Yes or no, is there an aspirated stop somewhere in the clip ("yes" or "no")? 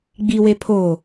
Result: yes